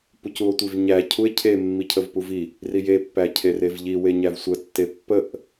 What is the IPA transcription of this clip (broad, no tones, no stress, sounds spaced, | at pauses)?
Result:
p u c u o̯ tʷ i v ɲ æ cʰ u e̯ cʰ e mː i cʰ ə v p u v i | r i j e pː æ cʰ e r e v ʎ i w e ɲ æ v sʷ ə tː e pː ə ʔ